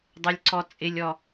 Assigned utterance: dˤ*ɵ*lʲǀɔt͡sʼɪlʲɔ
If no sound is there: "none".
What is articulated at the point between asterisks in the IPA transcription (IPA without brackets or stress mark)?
ɤ